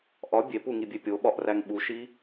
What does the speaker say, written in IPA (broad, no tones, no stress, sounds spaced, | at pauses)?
ʔ ɒ bʲ e p u ŋ i bʲ e pʲ o ɓ ɒ ʔ r æ ŋ ɓ u ʃ i